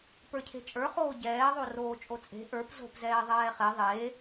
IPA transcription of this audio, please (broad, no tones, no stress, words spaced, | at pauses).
pə˞cʰe̤t͡ʃʼə˞χoː ɟɛːðˤo roːt͡ʃʼot͡sʼe̤ ʔə˞p zo̤pzɛː ðˤɛːχe ðˤeː